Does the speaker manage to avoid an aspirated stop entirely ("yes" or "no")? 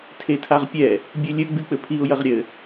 no